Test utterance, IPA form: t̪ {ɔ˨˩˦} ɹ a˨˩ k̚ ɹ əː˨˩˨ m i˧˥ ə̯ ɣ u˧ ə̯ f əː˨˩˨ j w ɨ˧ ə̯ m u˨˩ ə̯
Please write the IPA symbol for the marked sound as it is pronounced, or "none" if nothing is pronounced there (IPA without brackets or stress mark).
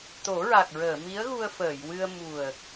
o˨˩˦